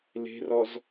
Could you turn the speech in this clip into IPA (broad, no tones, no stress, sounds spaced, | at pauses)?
l e̤ r ɔ z